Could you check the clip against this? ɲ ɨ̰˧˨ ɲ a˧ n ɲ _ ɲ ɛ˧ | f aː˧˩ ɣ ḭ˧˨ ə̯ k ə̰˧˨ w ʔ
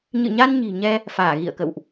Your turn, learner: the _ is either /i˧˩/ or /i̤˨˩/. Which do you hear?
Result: i̤˨˩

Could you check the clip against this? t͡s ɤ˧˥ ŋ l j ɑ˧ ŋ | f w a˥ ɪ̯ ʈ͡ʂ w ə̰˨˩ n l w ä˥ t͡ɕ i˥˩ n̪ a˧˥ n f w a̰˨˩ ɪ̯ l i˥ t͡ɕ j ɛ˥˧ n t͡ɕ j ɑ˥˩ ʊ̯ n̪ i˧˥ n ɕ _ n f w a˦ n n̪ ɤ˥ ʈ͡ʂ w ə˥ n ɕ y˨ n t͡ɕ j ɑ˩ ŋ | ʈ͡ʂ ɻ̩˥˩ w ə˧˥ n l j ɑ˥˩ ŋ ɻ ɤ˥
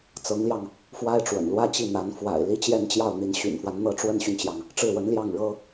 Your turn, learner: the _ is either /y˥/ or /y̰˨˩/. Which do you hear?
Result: y̰˨˩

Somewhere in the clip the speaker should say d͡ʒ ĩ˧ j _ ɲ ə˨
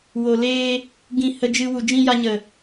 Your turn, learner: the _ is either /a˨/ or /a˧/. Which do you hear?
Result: a˧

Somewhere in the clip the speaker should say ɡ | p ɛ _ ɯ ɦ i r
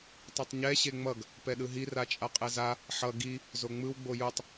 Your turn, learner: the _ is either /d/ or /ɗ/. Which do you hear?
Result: ɗ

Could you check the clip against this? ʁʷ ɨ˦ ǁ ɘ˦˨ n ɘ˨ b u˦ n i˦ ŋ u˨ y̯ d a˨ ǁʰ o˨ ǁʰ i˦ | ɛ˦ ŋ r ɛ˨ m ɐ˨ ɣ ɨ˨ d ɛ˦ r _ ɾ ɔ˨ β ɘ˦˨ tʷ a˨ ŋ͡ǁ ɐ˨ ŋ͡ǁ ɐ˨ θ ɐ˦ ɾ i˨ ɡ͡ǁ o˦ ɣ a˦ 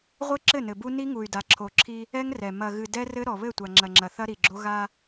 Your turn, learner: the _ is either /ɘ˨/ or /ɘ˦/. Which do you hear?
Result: ɘ˦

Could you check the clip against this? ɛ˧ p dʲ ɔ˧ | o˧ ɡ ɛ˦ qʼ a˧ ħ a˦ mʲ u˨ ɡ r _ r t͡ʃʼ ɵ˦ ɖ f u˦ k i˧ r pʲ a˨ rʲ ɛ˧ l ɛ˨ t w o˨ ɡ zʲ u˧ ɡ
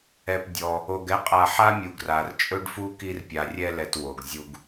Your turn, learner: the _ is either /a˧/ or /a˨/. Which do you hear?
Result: a˨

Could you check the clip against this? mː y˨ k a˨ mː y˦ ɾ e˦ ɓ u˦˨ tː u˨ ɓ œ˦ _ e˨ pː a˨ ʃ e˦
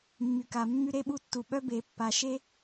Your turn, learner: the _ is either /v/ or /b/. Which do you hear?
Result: b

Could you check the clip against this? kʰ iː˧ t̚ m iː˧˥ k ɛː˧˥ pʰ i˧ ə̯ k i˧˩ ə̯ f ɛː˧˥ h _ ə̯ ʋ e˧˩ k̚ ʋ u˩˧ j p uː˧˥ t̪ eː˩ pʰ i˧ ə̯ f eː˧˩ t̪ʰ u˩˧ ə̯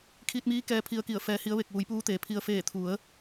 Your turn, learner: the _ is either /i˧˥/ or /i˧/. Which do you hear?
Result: i˧˥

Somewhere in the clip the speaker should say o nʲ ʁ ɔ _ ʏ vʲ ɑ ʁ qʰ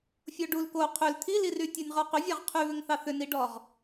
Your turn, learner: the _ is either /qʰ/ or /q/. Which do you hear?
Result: q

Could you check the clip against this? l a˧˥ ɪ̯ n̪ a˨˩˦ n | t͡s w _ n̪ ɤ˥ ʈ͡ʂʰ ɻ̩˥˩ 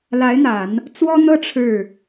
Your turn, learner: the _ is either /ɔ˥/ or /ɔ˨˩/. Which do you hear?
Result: ɔ˥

